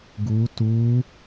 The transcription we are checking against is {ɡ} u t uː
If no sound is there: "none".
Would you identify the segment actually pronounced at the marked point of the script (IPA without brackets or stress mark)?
ɡ